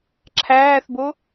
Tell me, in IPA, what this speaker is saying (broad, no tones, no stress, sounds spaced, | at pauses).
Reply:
ǁʰ æː θ b o